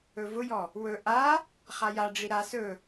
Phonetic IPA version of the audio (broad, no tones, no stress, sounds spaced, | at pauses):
ɵ v ʊ j ɔ | w ɵ ʔ a | χ a j a ɖ͡ʐ i ɾ a s ɵ